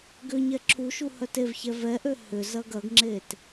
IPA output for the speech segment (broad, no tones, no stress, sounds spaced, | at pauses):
ɡ ʏ ɲ ɛ ǁʰ u ʃ u h œ t e v ç ɛ v ɛ ʔ ø h ʏ z ɐ ɡ ɐ ɡ ŋ͡ǁ e t